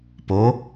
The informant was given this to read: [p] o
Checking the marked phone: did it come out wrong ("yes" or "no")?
no